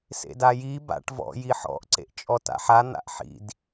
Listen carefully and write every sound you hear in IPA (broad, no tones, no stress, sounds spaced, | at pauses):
s ḛ d a j i b a̰ ʈ v ɔ̰ j i ħ ɔ̰ ʔ ǀ ḛ ʔ t͡ʃʼ ɔ t a̰ ħ a n̪ a̰ ʔ ħ ḭ d